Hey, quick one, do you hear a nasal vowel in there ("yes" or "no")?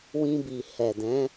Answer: yes